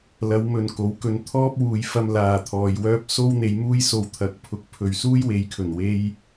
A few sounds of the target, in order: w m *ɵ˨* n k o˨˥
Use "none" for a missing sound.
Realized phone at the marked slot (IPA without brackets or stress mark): ɵ˨